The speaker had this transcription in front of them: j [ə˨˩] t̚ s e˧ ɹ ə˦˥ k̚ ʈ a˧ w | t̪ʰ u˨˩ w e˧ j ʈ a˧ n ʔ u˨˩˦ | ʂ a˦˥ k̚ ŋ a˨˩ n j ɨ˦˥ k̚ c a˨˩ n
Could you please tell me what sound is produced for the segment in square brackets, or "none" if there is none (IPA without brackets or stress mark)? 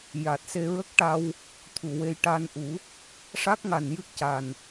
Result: a˨˩